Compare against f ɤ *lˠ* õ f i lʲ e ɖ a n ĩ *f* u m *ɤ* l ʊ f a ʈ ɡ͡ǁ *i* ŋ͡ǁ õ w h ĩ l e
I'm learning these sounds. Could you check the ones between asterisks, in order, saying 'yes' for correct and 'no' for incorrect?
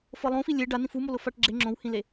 yes, yes, no, no

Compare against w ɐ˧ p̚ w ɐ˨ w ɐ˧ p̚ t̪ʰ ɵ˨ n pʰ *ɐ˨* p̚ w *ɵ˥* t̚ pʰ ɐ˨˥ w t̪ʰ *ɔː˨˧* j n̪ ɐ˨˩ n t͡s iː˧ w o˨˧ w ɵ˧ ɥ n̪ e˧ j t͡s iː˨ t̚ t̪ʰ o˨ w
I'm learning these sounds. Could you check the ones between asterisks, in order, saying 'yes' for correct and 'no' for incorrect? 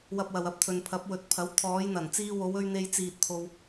no, no, yes

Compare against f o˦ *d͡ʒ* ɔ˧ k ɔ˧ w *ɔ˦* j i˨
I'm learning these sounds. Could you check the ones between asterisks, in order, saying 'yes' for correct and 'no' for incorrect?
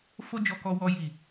yes, no

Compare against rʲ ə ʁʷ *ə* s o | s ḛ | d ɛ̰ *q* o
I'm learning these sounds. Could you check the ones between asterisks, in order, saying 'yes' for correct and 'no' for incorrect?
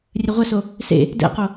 yes, yes

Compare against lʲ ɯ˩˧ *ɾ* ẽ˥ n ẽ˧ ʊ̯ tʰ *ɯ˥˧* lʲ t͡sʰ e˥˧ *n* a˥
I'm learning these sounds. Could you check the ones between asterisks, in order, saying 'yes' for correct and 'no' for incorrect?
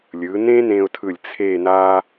no, no, yes

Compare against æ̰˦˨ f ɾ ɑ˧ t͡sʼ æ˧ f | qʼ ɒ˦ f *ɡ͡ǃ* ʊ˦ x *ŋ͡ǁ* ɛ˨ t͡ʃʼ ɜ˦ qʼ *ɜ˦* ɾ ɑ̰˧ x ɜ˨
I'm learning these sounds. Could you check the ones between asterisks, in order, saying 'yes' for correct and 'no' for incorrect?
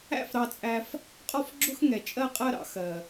no, no, yes

